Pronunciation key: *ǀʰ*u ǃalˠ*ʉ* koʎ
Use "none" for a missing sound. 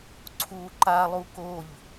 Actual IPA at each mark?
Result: ǀʰ, u

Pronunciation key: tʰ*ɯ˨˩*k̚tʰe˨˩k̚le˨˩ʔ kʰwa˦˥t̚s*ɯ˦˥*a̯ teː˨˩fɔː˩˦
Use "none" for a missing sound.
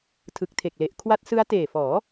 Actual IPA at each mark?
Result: ɯ˨˩, ɯ˦˥

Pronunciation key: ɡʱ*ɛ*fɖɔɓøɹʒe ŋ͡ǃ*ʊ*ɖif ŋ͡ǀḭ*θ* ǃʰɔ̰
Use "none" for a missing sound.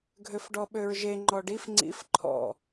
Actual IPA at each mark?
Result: ø, ɔ, f

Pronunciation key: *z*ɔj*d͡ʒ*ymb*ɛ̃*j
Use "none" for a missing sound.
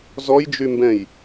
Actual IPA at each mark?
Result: z, d͡ʒ, ɛ̃

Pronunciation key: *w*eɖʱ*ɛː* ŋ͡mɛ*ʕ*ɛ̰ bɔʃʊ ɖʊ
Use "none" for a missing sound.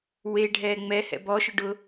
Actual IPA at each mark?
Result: w, ɛː, h

